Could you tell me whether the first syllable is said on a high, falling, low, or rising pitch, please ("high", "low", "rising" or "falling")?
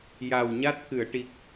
low